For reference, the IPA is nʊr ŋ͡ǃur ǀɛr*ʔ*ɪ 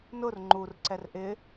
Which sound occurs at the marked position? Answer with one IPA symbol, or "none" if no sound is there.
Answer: ʔ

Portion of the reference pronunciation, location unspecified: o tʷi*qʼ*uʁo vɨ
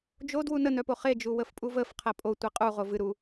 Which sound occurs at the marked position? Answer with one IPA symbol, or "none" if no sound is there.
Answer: qʼ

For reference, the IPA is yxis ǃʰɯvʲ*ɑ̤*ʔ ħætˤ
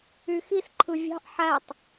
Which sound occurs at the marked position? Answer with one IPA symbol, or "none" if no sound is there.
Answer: ɑ̤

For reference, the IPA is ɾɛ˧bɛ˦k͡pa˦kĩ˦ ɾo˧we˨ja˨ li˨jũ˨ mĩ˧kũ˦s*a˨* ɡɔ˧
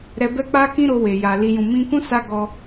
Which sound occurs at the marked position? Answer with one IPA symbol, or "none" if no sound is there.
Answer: a˧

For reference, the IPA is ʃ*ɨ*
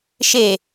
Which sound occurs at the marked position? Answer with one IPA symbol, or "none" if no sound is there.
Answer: e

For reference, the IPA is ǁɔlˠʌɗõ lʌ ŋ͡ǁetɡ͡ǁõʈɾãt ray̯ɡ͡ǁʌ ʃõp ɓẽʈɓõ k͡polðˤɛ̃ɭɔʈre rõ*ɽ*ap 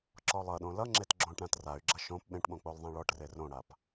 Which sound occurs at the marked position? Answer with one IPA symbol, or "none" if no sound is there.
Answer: ɽ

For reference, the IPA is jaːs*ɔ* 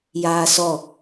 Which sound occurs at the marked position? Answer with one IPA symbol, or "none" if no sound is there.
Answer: ɔ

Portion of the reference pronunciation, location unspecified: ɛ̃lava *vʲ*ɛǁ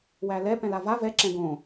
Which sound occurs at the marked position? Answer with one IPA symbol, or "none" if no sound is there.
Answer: v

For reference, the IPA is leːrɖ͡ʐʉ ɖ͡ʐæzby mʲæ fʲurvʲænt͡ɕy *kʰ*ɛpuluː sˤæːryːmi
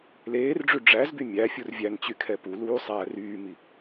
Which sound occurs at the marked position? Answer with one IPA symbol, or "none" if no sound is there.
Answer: kʰ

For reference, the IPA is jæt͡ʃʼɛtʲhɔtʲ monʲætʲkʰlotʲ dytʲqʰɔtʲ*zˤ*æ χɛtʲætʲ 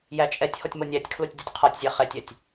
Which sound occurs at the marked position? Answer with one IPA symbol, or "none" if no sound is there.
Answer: zʲ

